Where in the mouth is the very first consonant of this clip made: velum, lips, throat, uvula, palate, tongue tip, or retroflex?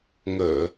velum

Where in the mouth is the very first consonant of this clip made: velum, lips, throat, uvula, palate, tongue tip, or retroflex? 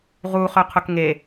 uvula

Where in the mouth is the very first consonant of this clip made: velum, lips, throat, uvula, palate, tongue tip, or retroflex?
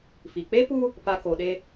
lips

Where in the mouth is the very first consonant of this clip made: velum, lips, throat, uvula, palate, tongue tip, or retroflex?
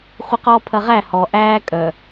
uvula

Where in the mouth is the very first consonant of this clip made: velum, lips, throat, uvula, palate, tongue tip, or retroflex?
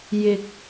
palate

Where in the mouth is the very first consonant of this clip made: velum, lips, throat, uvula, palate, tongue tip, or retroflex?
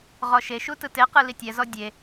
uvula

